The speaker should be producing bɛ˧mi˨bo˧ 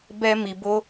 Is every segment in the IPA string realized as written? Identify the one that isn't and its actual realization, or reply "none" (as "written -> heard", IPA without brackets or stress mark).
none